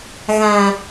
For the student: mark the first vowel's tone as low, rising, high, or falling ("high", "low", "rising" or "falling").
low